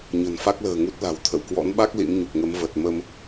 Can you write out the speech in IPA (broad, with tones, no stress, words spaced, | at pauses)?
ɲə̤˨˩nfa˦˥k̚lə̤ː˨˩ ŋu˦˥t̚la̤˨˩w t̪ʰə̰˧˨w kwɔ̰˧˥nɓa˦˥k̚ lḭ˧˥mɲu˨˩k̚ŋə˨˦m və˨˩t̚mə˧m